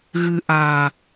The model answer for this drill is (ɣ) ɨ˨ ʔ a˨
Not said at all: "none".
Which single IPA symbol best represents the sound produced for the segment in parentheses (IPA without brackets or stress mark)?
ɣ